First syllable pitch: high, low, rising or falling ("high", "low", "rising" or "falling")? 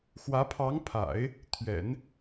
rising